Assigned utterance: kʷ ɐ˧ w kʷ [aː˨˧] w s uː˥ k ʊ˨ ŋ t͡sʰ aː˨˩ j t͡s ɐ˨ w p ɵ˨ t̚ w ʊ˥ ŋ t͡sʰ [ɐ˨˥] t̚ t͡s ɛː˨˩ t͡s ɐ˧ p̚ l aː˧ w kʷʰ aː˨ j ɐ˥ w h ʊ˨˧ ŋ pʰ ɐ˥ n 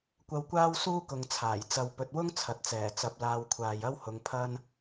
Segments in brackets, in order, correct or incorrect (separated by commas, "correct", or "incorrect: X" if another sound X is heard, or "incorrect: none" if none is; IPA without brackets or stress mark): incorrect: aː˥, incorrect: ɐ˨